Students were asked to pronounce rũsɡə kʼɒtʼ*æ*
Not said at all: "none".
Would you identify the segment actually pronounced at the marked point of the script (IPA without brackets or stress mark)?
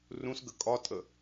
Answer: ə